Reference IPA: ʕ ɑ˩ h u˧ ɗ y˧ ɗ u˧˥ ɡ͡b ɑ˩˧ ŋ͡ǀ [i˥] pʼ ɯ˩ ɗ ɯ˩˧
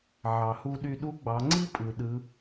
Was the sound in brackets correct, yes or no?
yes